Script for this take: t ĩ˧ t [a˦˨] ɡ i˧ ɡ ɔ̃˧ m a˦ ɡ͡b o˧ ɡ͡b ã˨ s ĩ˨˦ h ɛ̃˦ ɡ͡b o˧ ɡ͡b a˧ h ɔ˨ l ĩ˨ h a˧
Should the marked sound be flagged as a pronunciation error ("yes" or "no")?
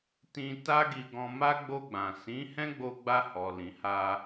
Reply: yes